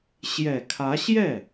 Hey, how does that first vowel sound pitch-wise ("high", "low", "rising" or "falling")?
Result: low